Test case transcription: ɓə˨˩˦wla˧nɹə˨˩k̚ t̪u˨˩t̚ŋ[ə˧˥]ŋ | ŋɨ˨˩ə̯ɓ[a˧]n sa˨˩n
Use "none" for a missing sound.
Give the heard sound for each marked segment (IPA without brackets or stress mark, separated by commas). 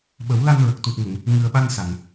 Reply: ə˨˩˨, a˧